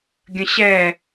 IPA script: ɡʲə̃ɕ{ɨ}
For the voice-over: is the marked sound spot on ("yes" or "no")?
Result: no